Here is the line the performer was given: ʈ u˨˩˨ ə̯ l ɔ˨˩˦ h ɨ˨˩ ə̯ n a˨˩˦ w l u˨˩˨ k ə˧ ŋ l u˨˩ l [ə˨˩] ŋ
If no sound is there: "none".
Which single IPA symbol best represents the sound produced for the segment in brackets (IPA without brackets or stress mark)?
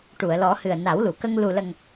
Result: ə˨˩